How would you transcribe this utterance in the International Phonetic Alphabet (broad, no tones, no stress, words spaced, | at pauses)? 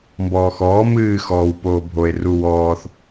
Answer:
mbɔːxɔː mɨː xɔːwpoːbʱoe̯ ruwɔːθ